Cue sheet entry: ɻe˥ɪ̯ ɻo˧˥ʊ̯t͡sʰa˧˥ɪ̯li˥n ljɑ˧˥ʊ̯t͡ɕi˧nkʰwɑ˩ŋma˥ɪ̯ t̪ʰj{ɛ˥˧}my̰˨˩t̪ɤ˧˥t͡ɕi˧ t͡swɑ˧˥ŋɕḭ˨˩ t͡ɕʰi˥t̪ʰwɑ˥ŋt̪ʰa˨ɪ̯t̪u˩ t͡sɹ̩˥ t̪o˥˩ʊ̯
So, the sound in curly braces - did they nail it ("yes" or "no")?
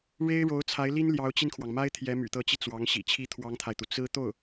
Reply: no